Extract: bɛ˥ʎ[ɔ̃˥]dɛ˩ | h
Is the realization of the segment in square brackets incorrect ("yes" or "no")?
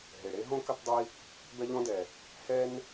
no